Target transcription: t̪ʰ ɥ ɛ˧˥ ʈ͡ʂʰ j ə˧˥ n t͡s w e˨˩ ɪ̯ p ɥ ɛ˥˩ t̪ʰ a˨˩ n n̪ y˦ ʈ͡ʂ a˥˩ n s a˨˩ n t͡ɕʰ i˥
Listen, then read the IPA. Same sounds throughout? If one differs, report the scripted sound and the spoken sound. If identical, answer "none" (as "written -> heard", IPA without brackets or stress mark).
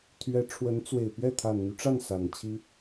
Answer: j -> w